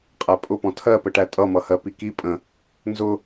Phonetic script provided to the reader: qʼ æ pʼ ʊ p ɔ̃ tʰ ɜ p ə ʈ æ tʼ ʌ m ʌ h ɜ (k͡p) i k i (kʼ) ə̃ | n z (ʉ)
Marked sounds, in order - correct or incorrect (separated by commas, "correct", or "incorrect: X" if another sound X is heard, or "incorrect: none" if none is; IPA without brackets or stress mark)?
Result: incorrect: p, incorrect: pʼ, incorrect: ʊ